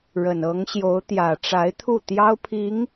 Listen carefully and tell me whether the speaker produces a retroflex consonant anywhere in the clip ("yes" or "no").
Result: yes